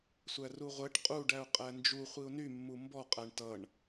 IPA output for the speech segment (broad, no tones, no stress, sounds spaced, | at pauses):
sʷ æ r u ʁʷ ɛ ʈ qʼ u ɖ æ ʊ̯ qʼ æ n d͡ʒ u χʷ i ʊ̯ n y mː u m b ɔ qʼ æ ɳ t ʌ ɳ